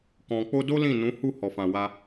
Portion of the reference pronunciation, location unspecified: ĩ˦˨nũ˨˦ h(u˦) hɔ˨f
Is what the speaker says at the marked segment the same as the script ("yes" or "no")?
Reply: no